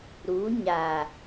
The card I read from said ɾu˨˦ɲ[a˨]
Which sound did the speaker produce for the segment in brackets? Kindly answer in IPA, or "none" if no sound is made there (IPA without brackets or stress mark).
a˨